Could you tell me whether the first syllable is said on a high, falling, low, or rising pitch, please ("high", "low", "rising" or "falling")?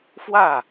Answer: falling